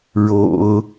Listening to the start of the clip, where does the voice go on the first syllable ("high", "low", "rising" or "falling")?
low